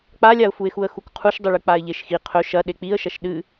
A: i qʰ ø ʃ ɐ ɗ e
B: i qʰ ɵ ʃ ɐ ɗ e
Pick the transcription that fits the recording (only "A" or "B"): B